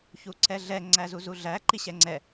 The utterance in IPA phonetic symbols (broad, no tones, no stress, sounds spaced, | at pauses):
ç u ǀ ɛ ɮ ɛ ŋ͡ǀ æ z u z u ɮ æ ǃ i ɕ ɛ ŋ͡ǀ ɛ